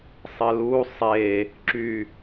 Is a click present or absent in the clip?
present